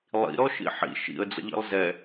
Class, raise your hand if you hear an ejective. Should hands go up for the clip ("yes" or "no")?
no